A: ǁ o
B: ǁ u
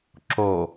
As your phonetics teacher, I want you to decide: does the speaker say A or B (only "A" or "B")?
A